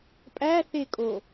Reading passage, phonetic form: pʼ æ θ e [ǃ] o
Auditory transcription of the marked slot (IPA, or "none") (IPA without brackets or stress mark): kʼ